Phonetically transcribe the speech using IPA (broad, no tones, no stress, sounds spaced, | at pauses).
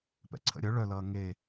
p ɛ̰ ǀʰ ə̰ ɾʲ œ ɭ œ l ʌː ŋ e